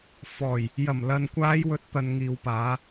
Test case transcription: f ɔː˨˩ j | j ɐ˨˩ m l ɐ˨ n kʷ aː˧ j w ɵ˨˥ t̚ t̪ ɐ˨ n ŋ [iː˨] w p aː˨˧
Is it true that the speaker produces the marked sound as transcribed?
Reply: yes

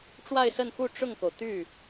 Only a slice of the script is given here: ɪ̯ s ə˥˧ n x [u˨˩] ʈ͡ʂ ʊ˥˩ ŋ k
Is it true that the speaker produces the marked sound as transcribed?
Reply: no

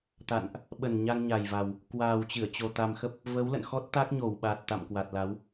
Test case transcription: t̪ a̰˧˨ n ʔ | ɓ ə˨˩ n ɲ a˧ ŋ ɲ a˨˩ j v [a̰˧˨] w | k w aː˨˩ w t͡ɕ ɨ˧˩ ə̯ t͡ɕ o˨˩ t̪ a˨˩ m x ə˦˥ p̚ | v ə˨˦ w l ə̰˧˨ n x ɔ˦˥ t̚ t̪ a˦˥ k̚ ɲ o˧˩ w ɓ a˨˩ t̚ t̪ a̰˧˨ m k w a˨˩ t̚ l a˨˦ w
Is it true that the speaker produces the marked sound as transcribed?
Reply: no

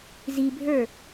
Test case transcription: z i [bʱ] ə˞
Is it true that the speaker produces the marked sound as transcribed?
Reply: yes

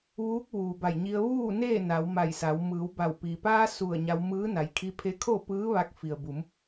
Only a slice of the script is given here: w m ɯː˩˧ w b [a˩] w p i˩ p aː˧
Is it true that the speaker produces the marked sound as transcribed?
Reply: no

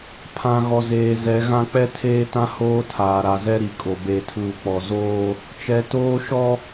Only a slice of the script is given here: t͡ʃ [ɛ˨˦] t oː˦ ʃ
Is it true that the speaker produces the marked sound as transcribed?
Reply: yes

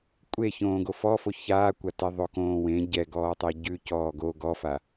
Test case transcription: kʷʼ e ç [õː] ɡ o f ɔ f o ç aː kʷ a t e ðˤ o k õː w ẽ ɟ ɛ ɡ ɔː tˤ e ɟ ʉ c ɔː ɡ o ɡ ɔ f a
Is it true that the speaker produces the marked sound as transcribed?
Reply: yes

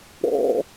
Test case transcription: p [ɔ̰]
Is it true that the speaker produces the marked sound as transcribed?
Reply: yes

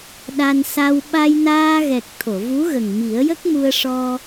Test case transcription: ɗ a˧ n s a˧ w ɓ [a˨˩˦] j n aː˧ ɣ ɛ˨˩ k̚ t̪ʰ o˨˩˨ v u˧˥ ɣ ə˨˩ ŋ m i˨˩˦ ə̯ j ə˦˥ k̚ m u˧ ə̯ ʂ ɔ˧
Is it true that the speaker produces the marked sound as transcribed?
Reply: no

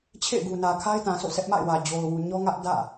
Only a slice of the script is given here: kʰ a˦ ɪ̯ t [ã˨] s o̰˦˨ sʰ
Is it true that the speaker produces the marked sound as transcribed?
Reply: yes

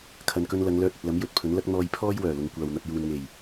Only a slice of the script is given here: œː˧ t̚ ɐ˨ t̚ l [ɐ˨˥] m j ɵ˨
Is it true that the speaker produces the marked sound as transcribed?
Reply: yes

